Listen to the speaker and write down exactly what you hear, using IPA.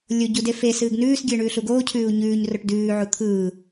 lʲ o ɟ u d e f e s ɨː ɡ n ʉː s ɡʲ ɨː ɳ ʉː ɬ u ɡ oː cʰ ʉː u̯ ɲ ʉː ɲ r o ʈ d ʉː ʕ u t̪ʰ ɯː

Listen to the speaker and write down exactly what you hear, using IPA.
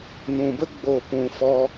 n ũ˨ b ə˦ ɡ͡b o˦˨ p ũ˧ f ɔ˦

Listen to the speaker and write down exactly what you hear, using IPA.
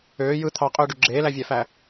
øː j ɯ t̪ʰ ɑ qʼ øː ɖ y ɡ͡ǁ eː l æ vʲ æ f æ

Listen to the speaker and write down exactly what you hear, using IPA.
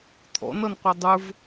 t̪ʰ ɔ̰ n ʌ n qʷ ʌ dˤ ə˞ v

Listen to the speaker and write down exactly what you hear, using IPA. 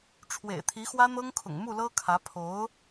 ʈ͡ʂʰ w ḛ˨˩ ɪ̯ t̪ʰ i˧˥ x w ä˥ n̪ ɤ˥ ŋ kʰ ʊ̰˨˩ ŋ m u˥˩ l ɤ˥ kʰ ä˧˥ pʰ o˧˥ ʊ̯

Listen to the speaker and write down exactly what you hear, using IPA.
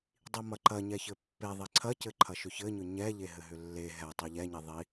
dˤ i m ɐ ǃ ɐ ɲ ɛ ç ɘ pː e ðˤ i ǀʰ ɐ c ɘ ǃʰ ɐ ʃ ʏ ç ɘ ɲ ʏ ɲ ɛ ʎ e ɦ ɘ ɦ ʏ lː e ɦ ɛ tˤ i ʎ ɛ ɲ i ðˤ i

